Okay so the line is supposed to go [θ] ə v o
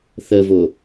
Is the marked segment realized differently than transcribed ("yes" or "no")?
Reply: no